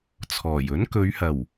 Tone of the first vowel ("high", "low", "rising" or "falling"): low